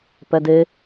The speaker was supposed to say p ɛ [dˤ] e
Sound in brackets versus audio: incorrect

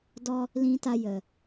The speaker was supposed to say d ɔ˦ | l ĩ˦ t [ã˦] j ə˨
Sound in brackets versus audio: incorrect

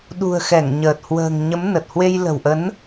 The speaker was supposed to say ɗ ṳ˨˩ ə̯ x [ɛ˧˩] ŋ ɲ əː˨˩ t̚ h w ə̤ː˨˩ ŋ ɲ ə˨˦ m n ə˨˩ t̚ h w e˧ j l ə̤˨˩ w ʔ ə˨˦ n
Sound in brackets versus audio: correct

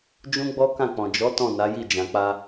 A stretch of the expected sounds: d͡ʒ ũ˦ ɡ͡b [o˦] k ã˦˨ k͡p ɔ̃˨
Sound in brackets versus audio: incorrect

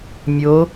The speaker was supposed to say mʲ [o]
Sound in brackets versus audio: correct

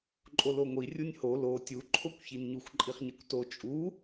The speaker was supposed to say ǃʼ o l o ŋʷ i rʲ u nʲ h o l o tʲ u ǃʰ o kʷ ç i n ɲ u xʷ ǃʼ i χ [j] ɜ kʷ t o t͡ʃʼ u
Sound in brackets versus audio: incorrect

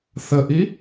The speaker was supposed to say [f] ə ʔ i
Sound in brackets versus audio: incorrect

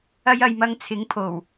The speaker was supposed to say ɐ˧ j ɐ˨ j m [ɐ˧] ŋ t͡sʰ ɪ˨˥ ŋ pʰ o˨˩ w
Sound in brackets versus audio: correct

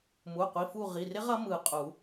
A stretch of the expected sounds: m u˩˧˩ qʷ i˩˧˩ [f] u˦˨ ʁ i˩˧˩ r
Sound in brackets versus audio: correct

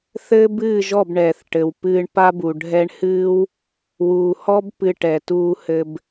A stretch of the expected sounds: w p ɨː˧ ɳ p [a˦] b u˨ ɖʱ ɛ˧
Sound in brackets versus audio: correct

